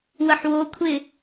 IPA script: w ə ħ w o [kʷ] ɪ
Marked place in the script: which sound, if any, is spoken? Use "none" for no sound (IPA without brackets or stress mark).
kʷʰ